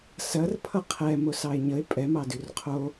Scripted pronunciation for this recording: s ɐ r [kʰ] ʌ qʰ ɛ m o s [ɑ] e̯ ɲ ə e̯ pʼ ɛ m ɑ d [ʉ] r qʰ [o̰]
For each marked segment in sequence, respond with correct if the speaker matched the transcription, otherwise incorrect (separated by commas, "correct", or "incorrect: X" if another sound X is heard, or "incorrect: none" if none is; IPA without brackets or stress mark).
incorrect: pʰ, correct, correct, incorrect: o